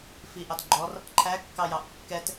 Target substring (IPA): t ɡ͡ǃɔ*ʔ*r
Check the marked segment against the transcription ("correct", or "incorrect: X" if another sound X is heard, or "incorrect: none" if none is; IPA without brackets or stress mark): incorrect: none